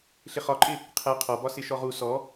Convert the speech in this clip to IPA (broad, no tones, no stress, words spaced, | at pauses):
ɬɪχɒǃʼɪ | qʰæ qʰɔbɒ sɪʃɔʁu sɔ